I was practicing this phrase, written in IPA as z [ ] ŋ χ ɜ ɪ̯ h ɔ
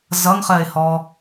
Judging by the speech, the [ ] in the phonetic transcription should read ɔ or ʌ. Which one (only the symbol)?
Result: ʌ